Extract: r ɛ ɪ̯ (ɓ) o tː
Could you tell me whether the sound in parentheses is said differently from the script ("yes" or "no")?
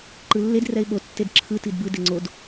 no